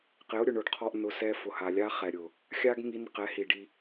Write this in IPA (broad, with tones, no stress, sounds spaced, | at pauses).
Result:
q ɪ˨˦ ʊ̯ ɾʲ ʊ˨ ɳ ʊ˨ ɖ qʰ ɔ˧ ʔ n ʊ˧ s ɛ˧ f ʊ˨ h a˨ lʲ a˦ χ ɛ˨ ɾʲ ʊ˨ | xʲ a˦ ɡ ŋ i˧ n q ɛ˨˦ h i˨ ɖ i˧